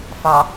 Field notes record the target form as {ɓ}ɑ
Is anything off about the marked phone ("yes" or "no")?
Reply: yes